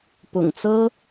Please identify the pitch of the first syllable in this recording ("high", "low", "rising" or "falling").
low